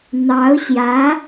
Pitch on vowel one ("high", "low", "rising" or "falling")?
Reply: rising